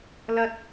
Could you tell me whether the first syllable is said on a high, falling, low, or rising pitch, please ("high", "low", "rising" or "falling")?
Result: low